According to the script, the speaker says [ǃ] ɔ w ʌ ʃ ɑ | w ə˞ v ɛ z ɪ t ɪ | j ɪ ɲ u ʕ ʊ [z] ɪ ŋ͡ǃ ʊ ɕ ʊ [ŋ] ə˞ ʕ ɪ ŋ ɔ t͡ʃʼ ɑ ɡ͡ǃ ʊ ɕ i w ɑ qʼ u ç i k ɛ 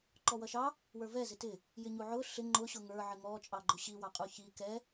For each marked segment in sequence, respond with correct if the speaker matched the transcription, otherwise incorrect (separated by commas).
correct, incorrect, correct